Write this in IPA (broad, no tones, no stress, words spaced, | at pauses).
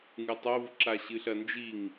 ŋɨtˤov ǁaɕɨɬɐnd͡ʒiŋ